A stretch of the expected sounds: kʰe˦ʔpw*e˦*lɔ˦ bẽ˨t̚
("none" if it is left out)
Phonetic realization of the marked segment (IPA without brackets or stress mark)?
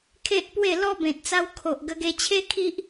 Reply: e˥˧